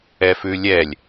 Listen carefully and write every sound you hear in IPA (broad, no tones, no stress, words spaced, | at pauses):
ɛfʉlʲɛlʲ